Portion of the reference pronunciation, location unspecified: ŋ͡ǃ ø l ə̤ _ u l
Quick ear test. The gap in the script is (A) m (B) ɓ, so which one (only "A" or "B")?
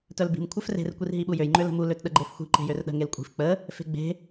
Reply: A